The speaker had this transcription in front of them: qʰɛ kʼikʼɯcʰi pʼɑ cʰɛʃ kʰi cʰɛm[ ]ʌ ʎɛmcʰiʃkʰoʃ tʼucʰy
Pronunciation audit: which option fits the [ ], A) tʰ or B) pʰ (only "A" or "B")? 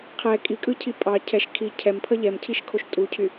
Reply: B